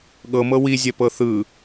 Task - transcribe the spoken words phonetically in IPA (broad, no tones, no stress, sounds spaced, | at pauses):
ɠ ɤ m ɤ w i zʲ ɛ p ɤ θ ɯ